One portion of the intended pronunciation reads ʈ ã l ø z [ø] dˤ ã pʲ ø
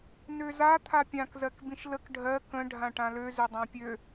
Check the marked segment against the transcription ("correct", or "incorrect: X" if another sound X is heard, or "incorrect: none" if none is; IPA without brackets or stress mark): correct